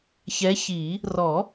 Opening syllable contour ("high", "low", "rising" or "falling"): rising